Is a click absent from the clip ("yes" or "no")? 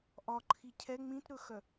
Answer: no